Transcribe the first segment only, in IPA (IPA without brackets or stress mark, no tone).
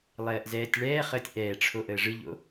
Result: lˠ